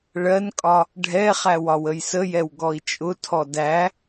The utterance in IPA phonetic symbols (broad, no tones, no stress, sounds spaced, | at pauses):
ɭ ɜ n kʼ ɒ | ɖʱ ɛ χ æ w ɒ w ə j s ə j ɛ w ɡ ɔ i̯ t͡ʃʼ ʊ tʰ ɔ d æ